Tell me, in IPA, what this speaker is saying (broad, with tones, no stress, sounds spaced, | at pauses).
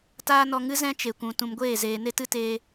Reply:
t aː˦ n ɔ˧ ŋ ɨ˦ z ɛ̃˦ t͡ʃ e˨ kʷ ũ˨ t ũ˨ m ɡʷ eː˦˨ z eː˨ n e˦ t ɨ˦ t eː˧